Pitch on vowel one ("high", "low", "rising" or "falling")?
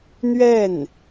falling